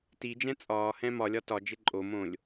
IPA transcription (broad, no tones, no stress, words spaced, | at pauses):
tid͡ʒɛ̃ t͡sʼɒː hɛ̃mɒlʲɒ tɒ d͡ʒeǃʼomõːlʲ